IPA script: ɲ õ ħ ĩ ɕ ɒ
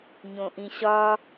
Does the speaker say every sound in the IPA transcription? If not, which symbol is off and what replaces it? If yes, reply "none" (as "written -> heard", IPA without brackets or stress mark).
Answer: ħ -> ʔ